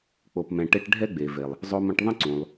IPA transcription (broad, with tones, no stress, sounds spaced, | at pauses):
k͡p o˩ p m ɛ̃˩ ʈ e˧ ʈ ɖʱ ɛ˥ ɡ͡b e˩ v e˩ lˠ | zˤ o˧ m ɐ̃˧ ʈ ðˤ ə̃˥ ǀ ũ˩ lˠ